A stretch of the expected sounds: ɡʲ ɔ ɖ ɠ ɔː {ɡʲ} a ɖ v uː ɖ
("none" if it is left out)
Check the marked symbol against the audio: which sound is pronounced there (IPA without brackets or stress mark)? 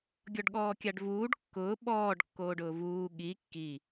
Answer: kʲ